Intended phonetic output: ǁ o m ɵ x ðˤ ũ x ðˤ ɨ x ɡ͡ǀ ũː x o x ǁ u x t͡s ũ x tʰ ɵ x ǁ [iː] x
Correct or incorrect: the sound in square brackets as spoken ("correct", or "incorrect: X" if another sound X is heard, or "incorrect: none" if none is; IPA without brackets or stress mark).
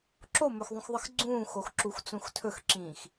incorrect: ĩː